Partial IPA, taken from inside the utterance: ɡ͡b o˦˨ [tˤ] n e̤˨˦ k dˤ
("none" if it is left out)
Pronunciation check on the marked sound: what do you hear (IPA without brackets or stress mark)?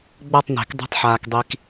tˤ